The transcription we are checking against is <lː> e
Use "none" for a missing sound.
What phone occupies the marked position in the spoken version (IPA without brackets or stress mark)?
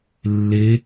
lː